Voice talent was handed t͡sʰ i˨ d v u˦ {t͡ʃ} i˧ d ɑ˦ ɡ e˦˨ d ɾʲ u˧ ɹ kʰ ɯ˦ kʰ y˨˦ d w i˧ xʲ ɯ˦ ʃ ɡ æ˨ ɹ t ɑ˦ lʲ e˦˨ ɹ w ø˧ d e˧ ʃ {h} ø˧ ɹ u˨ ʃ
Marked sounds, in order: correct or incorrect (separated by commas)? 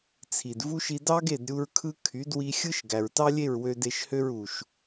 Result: incorrect, correct